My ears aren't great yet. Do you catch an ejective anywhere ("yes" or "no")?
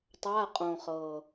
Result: yes